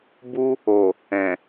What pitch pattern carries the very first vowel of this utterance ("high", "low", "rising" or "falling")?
high